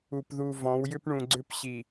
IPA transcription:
u˨pðu˨vɔ̃˨˦w jʏ˦pɳũ˨ ɡ͡ǀʏ˦pɕi˨

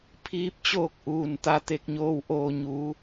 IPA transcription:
pʰiː˧˥p̚t͡ɕoː˥˨k̚ʔuː˧˩n t̪a˧t̪e˧k̚ɲoː˧w ʔoː˧˩ɲu˩˧

